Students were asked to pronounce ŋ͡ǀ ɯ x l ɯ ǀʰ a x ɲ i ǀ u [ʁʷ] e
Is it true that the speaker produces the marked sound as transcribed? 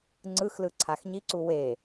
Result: no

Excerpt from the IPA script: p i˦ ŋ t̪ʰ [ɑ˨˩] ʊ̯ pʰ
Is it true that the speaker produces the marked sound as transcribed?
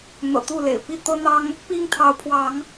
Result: no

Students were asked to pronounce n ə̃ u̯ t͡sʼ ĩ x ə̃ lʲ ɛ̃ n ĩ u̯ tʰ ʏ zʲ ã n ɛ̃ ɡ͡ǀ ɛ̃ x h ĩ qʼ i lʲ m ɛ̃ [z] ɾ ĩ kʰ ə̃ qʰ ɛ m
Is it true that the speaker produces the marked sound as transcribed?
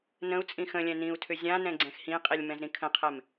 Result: yes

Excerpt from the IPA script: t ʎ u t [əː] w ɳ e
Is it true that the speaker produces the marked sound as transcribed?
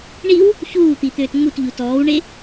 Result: no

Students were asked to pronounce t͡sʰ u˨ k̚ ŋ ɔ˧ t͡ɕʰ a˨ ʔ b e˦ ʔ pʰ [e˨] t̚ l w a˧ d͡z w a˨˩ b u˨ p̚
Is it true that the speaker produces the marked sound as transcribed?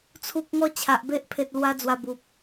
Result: yes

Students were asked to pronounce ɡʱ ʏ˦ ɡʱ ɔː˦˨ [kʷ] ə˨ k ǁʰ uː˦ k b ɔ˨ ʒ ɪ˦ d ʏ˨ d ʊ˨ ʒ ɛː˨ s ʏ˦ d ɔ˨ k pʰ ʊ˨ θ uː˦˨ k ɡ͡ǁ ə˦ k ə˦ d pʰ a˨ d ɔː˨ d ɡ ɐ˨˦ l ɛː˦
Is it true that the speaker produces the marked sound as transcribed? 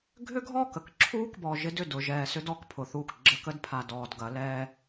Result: no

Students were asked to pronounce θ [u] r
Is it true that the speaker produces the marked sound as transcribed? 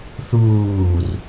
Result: no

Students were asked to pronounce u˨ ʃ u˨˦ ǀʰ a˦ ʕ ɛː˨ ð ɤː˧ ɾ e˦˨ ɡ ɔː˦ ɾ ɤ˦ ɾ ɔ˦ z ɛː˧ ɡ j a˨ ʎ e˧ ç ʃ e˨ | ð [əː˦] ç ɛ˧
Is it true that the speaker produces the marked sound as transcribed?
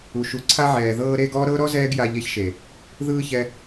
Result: no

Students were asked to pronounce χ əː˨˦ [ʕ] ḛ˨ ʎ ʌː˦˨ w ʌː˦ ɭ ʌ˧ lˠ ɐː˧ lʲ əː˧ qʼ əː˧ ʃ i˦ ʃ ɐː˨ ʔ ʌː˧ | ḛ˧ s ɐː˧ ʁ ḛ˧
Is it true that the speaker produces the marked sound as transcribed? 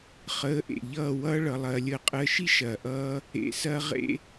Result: no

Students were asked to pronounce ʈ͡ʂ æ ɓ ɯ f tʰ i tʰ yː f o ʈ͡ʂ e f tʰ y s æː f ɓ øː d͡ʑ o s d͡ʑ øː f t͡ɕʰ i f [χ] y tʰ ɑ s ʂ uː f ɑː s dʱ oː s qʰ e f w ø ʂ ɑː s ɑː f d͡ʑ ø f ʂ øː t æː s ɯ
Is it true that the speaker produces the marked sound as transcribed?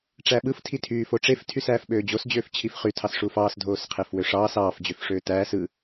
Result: yes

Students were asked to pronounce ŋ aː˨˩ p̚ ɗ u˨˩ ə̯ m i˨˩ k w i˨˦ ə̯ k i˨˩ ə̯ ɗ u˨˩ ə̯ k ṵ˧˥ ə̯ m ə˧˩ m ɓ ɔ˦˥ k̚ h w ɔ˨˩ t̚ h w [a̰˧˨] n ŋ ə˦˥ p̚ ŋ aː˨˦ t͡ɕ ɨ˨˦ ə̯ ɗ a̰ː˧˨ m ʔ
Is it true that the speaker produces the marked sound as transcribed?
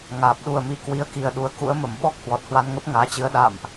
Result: no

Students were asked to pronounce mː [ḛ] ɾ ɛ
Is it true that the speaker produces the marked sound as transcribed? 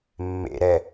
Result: yes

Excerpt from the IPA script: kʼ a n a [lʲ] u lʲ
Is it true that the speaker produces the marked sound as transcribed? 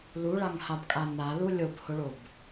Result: no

